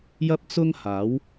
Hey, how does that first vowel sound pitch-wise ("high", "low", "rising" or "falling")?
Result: high